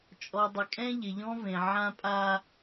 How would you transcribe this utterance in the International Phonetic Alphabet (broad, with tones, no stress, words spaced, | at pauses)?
t͡ʃʼɔ˨dˤɪ˨kʼɛ̃˦ ʎɪ˨ʎɔ̃˦vẽ˨ ʕã˦pʼa˦